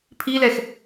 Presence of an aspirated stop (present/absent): present